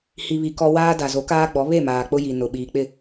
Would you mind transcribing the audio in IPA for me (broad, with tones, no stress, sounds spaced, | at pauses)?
h i˨ β i˨ k ɔ˦ w aː˦ d a˨ z o˨˦ k aː˦ ɡ͡b ɔ˨˦ β e˦˨ m aː˨ k͡p ʊ˦ j i˨ n ʊ˨ ɓ iː˨ k͡p ɪ˦˨